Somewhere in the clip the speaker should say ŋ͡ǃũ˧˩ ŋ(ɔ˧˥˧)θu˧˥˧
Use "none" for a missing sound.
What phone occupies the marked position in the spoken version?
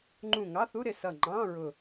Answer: ɑ˧˥˧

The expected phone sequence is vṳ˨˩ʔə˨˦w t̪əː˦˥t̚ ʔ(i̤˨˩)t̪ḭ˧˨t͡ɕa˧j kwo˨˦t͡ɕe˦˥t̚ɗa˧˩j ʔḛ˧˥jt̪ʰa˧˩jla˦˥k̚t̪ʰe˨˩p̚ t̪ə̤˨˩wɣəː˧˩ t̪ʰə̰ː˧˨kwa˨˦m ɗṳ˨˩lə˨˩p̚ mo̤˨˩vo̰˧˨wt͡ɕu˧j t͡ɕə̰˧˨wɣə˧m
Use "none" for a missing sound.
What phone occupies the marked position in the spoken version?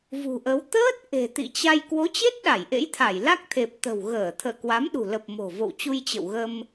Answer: e̤˨˩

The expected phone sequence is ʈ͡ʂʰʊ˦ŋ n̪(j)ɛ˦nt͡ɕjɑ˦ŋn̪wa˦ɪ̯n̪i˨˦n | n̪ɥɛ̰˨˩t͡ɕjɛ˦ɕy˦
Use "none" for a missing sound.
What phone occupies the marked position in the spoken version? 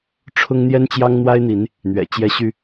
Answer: j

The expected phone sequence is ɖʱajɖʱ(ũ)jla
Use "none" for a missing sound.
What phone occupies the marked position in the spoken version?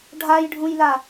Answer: ũ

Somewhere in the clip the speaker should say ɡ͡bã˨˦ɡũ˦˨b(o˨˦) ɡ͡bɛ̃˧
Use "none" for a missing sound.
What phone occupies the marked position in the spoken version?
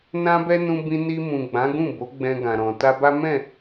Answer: o˨˦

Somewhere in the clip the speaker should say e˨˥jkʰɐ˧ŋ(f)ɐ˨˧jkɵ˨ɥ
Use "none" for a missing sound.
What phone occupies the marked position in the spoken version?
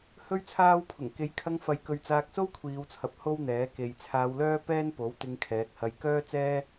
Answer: f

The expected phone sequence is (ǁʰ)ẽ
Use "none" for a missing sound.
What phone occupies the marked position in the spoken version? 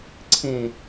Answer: ǀʰ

